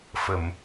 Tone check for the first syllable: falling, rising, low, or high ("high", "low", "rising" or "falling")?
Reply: low